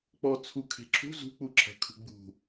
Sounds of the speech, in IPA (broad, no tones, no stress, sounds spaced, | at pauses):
k͡p ɔ t͡sʰ u kʰ e̤ ǁʰ ṳ z ṳ k͡p u ǁʰ ɛ̤ kʰ ṳ ɡ͡b ṳ